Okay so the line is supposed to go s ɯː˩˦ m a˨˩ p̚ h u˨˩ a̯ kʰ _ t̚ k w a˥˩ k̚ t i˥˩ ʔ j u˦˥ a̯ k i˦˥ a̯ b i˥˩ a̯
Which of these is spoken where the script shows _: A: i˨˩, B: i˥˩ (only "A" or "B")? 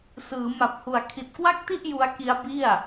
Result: A